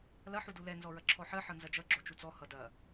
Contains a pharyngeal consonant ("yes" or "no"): yes